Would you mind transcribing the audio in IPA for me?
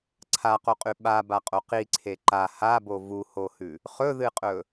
ǀʰ a q o qʼ ʉ ɓ a b a qʼ o q i ǀʰ e ǃ a h a b o v u h o h ʉ | χ ɵ ð ɨ qʼ ɵ

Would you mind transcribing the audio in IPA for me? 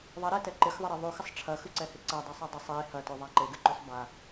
ðˤ ɐ ɾ ɛ t ɛ ǃ ɪ x ðˤ ɪ ɾ e ðˤ ʉ x ɪ sˤ ʈ͡ʂʰ ɐ x ʉ ǀ ɛ h ɪ ǀ ɐ dˤ e sˤ ɛ dˤ ɪ sˤ e h ɐ t ʉ ðˤ a ǃ e ɡ ɨ ǃ ʉ sˤ b a

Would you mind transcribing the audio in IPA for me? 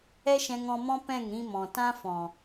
ɛ˦ ʃ ɛ̃˧ ŋ ɔ̃˧ m ɔ̃˦ p ɛ̃˦˨ ŋ ɾ ĩ˧ m ɔ̃˨ t ã˦ f ɔ̃˨

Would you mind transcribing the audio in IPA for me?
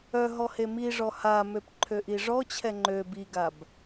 œ ɦ ɔ h e m i ʐ ɔ h a m ø p ǃʰ ø ʔ i ʐ ɔ t͡ɕʰ ɛ ŋ͡ǃ ø b i ɡ a b

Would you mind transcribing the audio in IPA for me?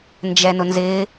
n d͡ʒ ɛ n ʊ n z ɪː

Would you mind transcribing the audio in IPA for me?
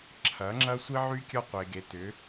ǁʰ ɐ˨˦ ŋ͡ǁ ɐ˦ sʷ i˦ ʕ y˦ kʲ ɒ˦ qʷ e˨ ɡ e˨ t ʏ˨˦

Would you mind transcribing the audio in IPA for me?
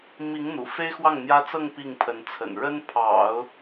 m i˧˥ ŋ n̪ ṵ˨˩ f e˥ ɪ̯ x w ɑ˥˩ ŋ n̪ j ä˥ t͡s ɤ˥˧ ŋ p i˥˩ ŋ pʰ ə˧˥ n t͡sʰ ə̰˨˩ n ɻ ə˥ n pʰ ɑ̰˨˩˦ ʊ̯

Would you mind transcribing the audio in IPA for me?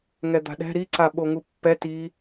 ŋ ɛ d̪ a̤ ɗ ɛ̤ ɾ i ǀ a ɓ o ŋ u pː ɛ t i

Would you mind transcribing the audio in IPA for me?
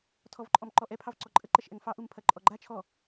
tʰ ɔ v ǃʼ ɔ m ǃ ɔ ʔ ɛ pʰ ɑ v ǀ ɔ ǃʼ ə ǃ ɛ ʃ ʔ ɛ ŋ f ɑ ʔ u m pʰ ɐ ǃʼ ɔ ɡ͡ǃ a t͡ʃʰ ɔ

